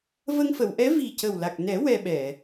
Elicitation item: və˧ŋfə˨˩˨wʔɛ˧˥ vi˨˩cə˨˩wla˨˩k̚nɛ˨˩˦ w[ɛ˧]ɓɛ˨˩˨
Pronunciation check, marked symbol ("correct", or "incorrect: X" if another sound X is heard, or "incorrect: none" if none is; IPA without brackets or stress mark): correct